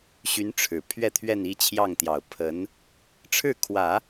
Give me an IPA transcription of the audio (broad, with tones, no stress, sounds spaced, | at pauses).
ɕ y˧˥ n ʈ͡ʂʰ ɻ̩˨˩ pʰ ɥ ɛ˥˧ t̪ʰ ɥ ɛ˥˧ n i˥˧ t͡ɕʰ j ɑ˥˩ ŋ t̪ j ɑ˨˩ ʊ̯ pʰ ə˧˥ n | ʈ͡ʂʰ ɻ̩˥˩ kʰ w ä˨˩˦